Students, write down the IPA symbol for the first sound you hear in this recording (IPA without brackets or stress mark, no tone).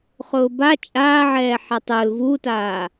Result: χ